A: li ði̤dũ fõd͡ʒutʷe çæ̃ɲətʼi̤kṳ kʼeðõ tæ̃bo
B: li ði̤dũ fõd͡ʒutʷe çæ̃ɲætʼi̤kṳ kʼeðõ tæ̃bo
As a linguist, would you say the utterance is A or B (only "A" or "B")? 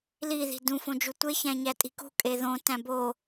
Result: B